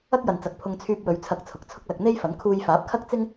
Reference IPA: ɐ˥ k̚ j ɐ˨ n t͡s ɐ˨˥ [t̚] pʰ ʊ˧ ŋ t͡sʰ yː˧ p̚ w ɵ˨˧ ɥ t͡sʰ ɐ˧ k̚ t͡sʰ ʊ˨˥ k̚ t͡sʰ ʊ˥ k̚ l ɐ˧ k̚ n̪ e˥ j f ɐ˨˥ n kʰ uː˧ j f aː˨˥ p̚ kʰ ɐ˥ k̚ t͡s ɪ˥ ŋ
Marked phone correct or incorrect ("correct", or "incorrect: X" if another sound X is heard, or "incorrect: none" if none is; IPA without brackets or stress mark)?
incorrect: k̚